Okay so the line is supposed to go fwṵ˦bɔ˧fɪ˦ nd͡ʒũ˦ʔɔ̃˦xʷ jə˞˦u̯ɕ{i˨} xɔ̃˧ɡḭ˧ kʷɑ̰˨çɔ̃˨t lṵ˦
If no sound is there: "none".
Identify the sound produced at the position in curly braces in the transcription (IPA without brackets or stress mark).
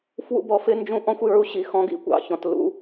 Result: i˨